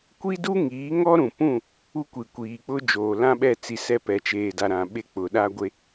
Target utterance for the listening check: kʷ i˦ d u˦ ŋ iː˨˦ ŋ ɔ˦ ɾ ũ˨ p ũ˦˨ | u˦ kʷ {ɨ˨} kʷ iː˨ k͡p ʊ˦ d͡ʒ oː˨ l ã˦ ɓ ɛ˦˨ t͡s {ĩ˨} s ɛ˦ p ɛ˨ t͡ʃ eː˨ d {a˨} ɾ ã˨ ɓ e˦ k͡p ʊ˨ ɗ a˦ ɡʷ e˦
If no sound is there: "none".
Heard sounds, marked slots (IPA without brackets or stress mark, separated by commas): i˨, i˨, a˨